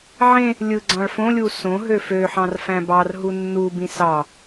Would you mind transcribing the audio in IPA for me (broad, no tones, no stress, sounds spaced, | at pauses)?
ʕ ẽ | lʲ ɯ ɡ͡ǀ ɑ̃ ɭ f õ lʲ u s õ ɦ ø f ø ħ ɑ̃ r f æ̃ b ɑ r ɦ u nː u b ĩ s ɑ